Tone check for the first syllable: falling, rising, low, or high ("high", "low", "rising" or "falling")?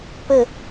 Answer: falling